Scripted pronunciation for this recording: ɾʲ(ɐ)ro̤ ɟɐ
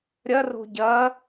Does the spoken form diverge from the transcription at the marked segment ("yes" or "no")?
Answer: no